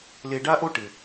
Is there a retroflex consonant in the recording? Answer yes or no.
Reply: yes